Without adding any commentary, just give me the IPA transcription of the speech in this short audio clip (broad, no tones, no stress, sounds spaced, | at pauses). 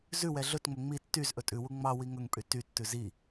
z ʉ w ɛ ɮ ɵ t ŋ͡m ɵ ŋ͡m i tː y z ʔ ɵ tʼ ʉ w u ŋ͡m ɑ w i ŋ ɵ ŋ pʼ y t y tː ʉ z i